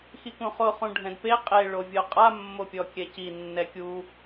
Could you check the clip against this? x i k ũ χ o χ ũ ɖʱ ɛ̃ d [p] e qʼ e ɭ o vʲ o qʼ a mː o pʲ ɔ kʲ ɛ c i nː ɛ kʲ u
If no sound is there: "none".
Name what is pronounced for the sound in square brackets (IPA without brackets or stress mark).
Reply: p